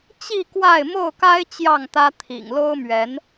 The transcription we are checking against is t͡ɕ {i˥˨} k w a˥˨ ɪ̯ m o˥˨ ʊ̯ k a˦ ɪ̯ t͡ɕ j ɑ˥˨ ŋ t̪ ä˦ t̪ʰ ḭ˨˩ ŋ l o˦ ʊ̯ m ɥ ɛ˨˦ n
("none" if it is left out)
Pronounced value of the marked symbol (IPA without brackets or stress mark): i˥˨